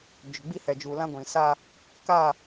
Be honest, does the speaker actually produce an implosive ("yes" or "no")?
no